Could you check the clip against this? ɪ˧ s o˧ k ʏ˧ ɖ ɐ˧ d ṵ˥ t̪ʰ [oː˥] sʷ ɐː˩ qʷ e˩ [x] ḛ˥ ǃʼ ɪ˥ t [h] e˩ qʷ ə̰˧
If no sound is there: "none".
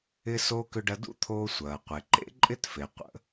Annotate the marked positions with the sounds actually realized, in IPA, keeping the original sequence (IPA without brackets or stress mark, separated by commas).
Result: oː˧, ǃ, f